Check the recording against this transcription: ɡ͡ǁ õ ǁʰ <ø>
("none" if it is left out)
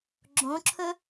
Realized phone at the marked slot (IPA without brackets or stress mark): ɵ